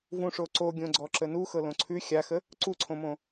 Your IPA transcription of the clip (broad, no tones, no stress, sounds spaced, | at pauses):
v ũ ʂ o ǀ o ɡʲ õ ɡ͡ǀ ɔ ǁ ə n u x ɤ l õ ǀʰ ʉ xʲ a x ə | ǀ u ǀʰ õ m õ